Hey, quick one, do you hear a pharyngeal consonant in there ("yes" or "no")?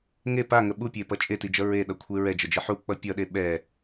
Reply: yes